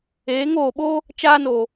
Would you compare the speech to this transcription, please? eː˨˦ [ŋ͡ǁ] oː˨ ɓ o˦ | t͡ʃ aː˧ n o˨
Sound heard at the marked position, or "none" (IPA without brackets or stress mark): ŋ